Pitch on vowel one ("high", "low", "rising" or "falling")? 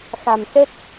low